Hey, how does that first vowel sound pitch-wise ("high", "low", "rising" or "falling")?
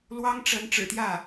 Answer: high